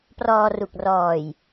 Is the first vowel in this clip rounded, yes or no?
yes